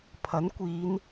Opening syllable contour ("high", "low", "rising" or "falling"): rising